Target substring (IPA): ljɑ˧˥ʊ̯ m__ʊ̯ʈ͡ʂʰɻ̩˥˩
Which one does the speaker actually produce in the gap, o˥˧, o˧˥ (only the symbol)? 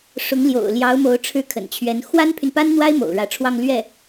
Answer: o˧˥